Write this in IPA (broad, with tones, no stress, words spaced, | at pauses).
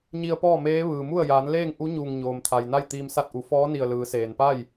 ɲi˧ə̯pɔː˥˨meː˧˥ ʋɯː˩mu˥˨ə̯ jaː˩˧nleː˥˨ŋʔu˧˥ ɲuː˧˩ŋɲoː˩mt̪ʰa˩jna˥˨j t̪iː˧msa˥˨t̚ʔu˩˧ fɔː˧˥ni˧˩ə̯ lɯː˩˧seː˩npa˥˨j